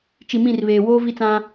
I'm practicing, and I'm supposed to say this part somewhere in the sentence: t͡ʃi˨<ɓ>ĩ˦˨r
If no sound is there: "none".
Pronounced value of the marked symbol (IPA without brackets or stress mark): m